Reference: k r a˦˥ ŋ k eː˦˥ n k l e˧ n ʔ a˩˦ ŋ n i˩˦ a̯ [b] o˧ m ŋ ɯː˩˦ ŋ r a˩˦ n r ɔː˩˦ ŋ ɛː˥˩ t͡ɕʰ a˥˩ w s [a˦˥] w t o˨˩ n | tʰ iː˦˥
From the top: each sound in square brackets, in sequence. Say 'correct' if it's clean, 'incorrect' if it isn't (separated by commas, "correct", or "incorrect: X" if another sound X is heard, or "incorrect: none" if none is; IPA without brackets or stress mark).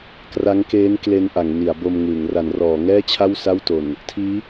correct, incorrect: a˥˩